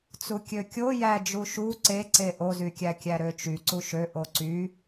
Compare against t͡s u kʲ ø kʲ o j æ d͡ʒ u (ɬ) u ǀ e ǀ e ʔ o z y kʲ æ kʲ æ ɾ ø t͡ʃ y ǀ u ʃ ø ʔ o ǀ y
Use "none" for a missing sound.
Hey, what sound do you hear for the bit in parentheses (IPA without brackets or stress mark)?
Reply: ʃ